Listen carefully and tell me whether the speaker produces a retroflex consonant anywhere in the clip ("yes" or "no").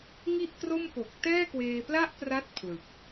no